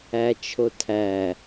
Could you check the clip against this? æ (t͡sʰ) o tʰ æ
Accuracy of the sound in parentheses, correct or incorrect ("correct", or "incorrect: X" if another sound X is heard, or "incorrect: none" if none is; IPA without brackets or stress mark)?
incorrect: t͡ʃʰ